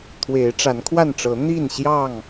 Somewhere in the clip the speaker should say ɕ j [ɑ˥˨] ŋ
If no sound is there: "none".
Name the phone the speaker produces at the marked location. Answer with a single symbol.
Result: ɑ˥˨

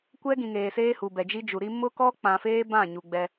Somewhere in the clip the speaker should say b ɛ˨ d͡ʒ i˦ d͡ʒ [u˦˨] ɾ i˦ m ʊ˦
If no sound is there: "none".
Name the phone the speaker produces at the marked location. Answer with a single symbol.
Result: u˨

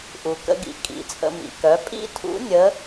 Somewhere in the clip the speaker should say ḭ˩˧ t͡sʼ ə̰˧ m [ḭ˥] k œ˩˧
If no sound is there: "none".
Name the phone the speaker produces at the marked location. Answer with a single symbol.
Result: ḭ˩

